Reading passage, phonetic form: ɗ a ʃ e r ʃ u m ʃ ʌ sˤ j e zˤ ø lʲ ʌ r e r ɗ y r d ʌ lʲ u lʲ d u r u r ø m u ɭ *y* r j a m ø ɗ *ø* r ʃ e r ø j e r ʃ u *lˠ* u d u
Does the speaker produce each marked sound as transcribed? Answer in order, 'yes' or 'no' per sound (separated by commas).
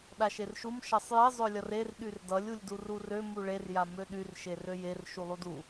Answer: no, no, yes